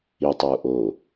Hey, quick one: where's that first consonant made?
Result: tongue tip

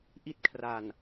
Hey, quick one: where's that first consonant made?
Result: throat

